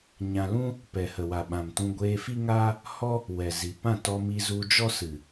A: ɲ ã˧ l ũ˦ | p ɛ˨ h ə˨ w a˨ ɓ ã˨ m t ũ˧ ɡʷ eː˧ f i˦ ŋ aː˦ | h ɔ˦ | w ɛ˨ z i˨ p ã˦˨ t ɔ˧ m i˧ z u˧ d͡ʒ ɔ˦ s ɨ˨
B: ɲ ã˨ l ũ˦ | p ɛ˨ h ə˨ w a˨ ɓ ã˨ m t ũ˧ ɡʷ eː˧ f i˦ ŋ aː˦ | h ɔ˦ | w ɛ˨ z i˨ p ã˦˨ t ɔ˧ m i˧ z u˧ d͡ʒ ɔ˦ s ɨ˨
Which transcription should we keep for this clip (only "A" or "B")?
A